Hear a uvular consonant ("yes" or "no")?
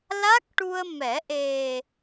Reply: no